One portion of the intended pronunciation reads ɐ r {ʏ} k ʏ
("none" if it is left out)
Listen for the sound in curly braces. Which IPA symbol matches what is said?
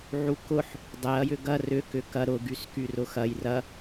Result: ʏ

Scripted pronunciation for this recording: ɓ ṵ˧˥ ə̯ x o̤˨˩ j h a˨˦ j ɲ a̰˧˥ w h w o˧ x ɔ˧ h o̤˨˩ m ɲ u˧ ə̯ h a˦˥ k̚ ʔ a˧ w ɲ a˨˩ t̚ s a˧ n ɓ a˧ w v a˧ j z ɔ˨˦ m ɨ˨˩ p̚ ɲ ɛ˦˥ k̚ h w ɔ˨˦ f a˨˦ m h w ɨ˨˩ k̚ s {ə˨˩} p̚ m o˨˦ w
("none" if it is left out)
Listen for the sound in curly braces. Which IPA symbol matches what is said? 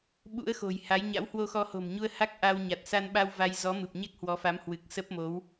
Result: ə˦˥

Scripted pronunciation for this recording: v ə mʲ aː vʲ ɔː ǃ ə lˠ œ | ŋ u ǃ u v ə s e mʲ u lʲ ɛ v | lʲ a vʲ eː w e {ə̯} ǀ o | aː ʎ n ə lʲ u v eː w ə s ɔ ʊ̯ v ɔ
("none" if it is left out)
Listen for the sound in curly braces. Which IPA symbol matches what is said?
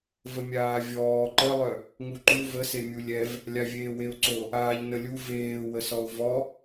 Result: ʊ̯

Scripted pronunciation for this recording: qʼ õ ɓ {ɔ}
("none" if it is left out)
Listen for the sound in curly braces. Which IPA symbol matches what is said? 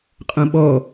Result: ɔ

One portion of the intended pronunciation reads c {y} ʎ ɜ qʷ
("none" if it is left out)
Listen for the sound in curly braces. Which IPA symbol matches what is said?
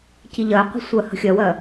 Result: i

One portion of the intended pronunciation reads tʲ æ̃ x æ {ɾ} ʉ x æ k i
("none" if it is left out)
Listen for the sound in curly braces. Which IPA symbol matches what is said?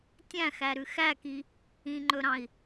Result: ɾ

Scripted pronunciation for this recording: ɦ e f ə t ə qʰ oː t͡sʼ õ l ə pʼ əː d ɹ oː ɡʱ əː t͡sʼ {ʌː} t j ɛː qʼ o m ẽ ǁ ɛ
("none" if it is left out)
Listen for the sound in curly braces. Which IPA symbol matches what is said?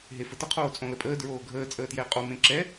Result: əː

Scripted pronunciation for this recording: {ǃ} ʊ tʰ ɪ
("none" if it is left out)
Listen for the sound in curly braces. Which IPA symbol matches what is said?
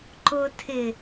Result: ǃ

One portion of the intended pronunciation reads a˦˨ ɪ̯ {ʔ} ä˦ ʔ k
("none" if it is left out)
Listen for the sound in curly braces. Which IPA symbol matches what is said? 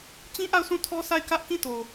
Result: k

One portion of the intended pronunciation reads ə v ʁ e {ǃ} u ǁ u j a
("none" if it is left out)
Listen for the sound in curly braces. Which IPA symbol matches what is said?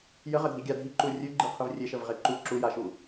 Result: ǃ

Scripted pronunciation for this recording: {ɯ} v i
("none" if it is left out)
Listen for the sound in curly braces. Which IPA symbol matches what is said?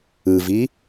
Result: ɯ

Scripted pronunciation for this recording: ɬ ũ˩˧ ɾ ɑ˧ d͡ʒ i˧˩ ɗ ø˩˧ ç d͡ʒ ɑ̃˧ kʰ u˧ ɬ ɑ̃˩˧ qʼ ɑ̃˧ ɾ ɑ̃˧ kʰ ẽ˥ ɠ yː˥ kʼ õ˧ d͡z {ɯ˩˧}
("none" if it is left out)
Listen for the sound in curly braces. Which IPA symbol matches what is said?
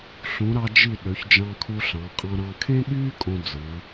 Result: ɯ˩˧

